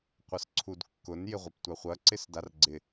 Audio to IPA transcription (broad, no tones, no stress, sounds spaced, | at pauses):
qʷ ʌ s ǀʰ u d kː ʊ n j ɪ ʁʷ ɐ p tʷ a χʷ ɐ ǀ ɪ s d a r ɡ͡ǀ ɪ